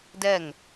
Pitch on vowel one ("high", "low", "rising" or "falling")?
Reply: falling